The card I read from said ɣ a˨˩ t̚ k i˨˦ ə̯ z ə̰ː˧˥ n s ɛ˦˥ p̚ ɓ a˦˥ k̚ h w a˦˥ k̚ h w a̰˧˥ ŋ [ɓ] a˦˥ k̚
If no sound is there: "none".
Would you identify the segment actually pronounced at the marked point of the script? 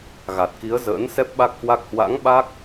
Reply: ɓ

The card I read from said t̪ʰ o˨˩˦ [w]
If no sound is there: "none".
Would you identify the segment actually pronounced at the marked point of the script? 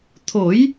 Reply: j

